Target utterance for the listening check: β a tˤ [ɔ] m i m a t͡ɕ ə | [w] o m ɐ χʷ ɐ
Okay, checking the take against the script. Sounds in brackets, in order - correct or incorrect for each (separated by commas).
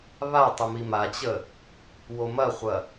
incorrect, correct